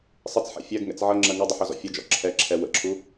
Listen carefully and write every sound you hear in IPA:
sˤɪt͡sħɛ̰ fʲɜɡŋɛ̰t͡s ʕʌŋ͡ǁɜ ŋʌdˤʌħɔzɔ̰ fʲʌd͡ʒɔ̰ ǁʰɛǁʰɛ wə̰ǁʰu

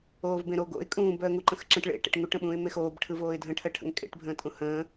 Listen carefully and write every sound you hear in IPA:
oːvbẽɾo ɡo̰ɪ̯ kʼũːb œə̯ŋuǃə̃xǁə̃ʈ ɭḛ ʈḛʈŋuʈ ə̃ɓũːɪ̯mexoːb ʈʰɯvoːɪ̯dʱə̃ ʈʰɜʈʰə̰ŋkʼḛʈ bʱə̃ːtʼũhə̃ː

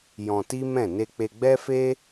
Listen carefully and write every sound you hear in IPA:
jɔ̃˧ti˦ mɛ̃˦˨ ne˧k͡pe˧ɡ͡bɛ˦fe˦

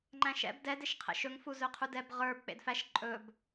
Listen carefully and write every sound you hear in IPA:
ŋ͡ǃæ̃ʃɛ̰b dɛd eʃqʰɛ̰ʃɵŋfu zɵqʰudɛb ʁə˞b k͡pḛdfæʃ ǃʼɵb

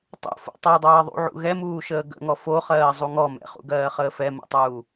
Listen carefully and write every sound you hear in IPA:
tˤo̰fo̰ tˤodˤɜːðˤṵʕṵ ɣɛmuːʃəː ɡə̰ŋɔ foχɜː zˤuŋɔ mɛ̰χṵɡɜː χəːfɛ mṵtˤuː

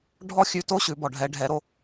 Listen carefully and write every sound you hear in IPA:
ɖʱɔ˥xʲʉ˧to˥ ɕʉ˩˧bɔ˩ɖʱɛ˩˧ ɖʱɛ˩˧ɾo˧

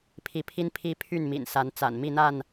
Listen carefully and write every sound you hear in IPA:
pʰi˨˦pʰi˦npʰi˦ pʰy˥˨nmḭ˨˩n sa˨˦nt͡sa̰˨˩n mi˥˨n̪a˥˨n

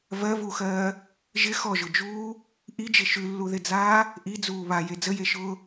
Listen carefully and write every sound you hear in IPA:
vɜvuːxɜː | ʒɪ xɔʒʊd͡ʒuː | ʔid͡ʒɪ ʃʉlːuðɪd͡zaː | ʔid͡zuː βaje d͡zəjeʃʊː

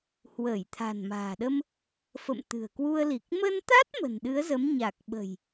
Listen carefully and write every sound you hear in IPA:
hwəː˧˩jt̪ʰa̤˨˩nma̤ː˨˩ɗə˧m | fə̰˧˨mt̪ɨ̤˨˩ə̯kwu˧ə̯ li˨˩k̚ mə˧nt̪a˦˥t̚ mə̤˨˩nɗɨ˨˦ə̯zə˨˦m ɲa˨˩k̚ɓə̤˨˩j

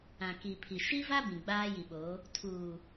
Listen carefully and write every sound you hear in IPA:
ã˨ki˨pʰi˨ ʃi˦va˦ bĩ˨ɡ͡baː˦ji˨ɓo˨˦ | tʰuː˨

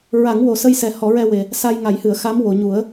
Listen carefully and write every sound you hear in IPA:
ɹa˨˩˦ŋwo˨˩ sə˧jsɛ˨˩ hɔ˨˩˦ɹɛ˧we˨˩ | sa˧jŋa˨˩˦jhɨ˨˩˨ə̯xa˧˥m wo˨˩˨ɲu˨˩˦ə̯

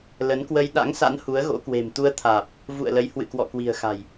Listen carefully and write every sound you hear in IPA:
lə˨˦nkwə˧j ɗa̰˧˥ŋsa̰˧˥n hu˨˦ə̯ɣo̰˧˥kwe̤˨˩m t̪u˧ə̯t̪ʰaː˨˩p̚ | vṵ˧˨ə̯lə˨˦j hwɨ̰˧˨kwɔ̰˧˨kwi̤˨˩ə̯xa̤˨˩j

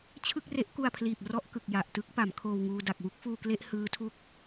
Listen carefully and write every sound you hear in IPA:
t͡ɕʰɯ˥˩k̚re˦˥ʔku˧a̯pʰliː˨˩p̚ rɔ˥˩ʔkɯ˨˩k̚ja˨˩ʔtɯ˦˥k̚ pa˩˦mkʰoː˧wŋuː˧ da˨˩k̚wu˦˥k̚fuː˧kle˥˩ʔ hɯː˦˥tʰu˦˥k̚

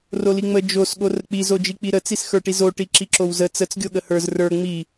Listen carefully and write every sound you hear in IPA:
roliŋ͡mə d͡ʒos ɠorək͡pi zod͡ʒik͡piɾə t͡sisxə˞ʈizo ʈiǁiǁowzə t͡sət͡s ɡʲoɠəhə˞z rə˞ ŋ͡mi

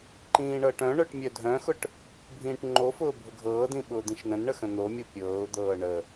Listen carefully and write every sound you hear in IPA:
ǃĩːɳɤʈœ̃ɳœʈ mʲœdʱœ̃xʊʈ | bʱĩːʈŋ͡ǃofʊː bʱʊɡʱɤːdĩ ɓʊːd̪ĩʃnə̃nɳə xə̃n̪omʲo pʲɤːʊ̯d̪ɤː ɳə

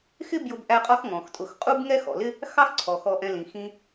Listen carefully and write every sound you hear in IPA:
xɪ˥ bjʊ˦bʔæ˦qʼɒ˥x ŋɔ̃˩xtʼʊ˨x qʼu˥b ŋɛ˦xɔ̰˩lɪ˦ | xɑ˥xǀʰɔ˩xɔ˨ʔɛ̃˨ lĩ˩ xĩ˨

